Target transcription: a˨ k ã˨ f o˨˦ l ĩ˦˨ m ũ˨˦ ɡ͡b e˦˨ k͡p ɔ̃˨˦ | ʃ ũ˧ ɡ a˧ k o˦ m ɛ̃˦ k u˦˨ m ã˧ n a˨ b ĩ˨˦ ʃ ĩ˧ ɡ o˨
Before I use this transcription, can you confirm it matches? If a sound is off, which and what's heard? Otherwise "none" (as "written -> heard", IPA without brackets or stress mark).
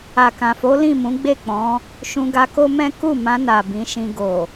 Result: none